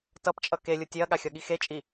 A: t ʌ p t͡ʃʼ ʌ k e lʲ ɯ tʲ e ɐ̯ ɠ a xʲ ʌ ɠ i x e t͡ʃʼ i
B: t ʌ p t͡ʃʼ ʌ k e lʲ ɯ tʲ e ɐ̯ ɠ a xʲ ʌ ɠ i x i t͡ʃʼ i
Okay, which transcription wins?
A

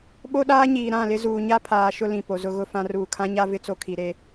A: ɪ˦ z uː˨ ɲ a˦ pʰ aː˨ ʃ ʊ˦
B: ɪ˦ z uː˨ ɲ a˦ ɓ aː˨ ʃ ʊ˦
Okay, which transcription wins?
A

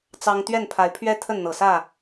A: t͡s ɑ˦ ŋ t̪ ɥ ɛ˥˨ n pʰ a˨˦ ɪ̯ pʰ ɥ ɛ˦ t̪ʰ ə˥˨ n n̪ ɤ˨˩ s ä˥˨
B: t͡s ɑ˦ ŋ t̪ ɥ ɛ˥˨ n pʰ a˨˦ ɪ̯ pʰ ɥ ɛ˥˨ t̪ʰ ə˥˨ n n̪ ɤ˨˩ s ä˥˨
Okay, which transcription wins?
A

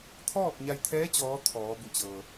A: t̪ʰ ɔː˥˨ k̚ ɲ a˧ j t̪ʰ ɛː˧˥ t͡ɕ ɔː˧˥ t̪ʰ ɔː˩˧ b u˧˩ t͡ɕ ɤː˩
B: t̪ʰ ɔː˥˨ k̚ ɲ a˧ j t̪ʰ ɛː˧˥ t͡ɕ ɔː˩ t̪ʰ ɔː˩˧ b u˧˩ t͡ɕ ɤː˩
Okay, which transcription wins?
A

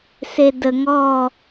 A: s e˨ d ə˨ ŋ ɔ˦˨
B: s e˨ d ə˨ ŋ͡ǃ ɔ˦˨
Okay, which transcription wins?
A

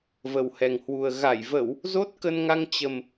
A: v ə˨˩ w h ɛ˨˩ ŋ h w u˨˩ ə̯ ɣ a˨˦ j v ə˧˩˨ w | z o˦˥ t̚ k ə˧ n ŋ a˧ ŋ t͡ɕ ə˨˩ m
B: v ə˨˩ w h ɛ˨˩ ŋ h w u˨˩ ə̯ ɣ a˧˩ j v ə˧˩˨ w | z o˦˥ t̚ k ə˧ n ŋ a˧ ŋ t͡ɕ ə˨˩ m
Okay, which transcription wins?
B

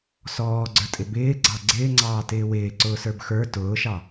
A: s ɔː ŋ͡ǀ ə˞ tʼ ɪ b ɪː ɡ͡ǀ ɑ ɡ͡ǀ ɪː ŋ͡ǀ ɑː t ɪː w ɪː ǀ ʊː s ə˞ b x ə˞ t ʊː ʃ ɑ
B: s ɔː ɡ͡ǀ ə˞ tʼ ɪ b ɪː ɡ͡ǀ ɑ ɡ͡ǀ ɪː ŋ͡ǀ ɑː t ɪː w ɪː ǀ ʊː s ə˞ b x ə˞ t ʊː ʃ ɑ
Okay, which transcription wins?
B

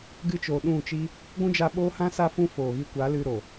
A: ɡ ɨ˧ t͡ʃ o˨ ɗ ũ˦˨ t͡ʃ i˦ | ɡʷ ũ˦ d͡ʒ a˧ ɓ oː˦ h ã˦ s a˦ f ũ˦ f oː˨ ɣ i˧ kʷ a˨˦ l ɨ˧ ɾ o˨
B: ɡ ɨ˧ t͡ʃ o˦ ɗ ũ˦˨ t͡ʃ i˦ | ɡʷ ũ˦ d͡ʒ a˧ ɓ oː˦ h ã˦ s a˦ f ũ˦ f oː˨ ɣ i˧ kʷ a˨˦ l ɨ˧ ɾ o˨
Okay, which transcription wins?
A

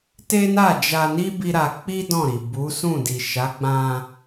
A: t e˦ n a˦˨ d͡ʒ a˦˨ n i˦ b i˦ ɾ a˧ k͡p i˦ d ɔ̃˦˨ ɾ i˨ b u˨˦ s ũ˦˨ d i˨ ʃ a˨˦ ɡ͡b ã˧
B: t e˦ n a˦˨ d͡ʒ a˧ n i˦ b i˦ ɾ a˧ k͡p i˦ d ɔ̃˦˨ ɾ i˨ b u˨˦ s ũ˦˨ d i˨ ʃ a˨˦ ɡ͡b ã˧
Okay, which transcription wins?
B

